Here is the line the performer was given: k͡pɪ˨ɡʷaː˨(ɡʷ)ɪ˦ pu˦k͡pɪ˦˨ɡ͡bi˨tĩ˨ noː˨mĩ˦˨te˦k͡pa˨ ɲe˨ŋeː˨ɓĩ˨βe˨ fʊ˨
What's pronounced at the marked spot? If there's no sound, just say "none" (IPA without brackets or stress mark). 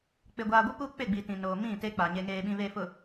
ɡʷ